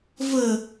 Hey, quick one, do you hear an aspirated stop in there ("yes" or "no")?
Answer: no